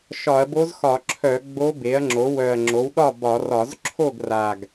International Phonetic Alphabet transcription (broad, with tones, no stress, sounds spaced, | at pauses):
ʃ ɒ˧˩˧ ɐ̯ b o˧˥ z x ɒ˧˩˧ ǁʰ œ˧˩˧ ɡ͡b o˧˥ b e˩˥ ɐ̯ ŋ͡ǁ o˩˥ w œ˨˩ ɐ̯ ŋ͡ǁ o˩˥ w ɗ ɒ˥˩ b ɒ˧˩˧ r ɒ˧˩˧ z ǁʰ o˥˩ ɡ r a˨˩ ɡ